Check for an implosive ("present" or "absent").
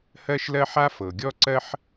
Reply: absent